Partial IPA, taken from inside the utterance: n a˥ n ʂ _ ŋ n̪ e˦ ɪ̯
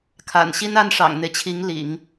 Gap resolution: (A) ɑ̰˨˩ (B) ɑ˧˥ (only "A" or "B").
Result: A